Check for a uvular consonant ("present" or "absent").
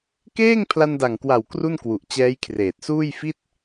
absent